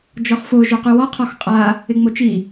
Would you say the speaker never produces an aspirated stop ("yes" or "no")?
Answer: no